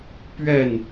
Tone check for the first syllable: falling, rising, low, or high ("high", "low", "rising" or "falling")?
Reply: falling